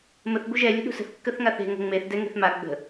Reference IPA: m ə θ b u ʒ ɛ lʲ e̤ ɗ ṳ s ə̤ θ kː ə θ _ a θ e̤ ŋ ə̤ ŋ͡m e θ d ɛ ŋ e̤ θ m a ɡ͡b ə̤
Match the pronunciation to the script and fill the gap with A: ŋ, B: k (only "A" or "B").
A